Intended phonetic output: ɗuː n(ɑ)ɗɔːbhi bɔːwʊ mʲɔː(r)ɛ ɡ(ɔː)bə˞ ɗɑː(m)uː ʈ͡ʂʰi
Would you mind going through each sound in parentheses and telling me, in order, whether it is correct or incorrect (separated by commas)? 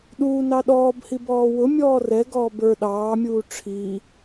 correct, correct, correct, incorrect